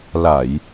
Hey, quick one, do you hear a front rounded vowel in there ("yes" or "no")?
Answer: no